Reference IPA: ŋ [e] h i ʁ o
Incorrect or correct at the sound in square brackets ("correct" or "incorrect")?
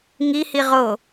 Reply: incorrect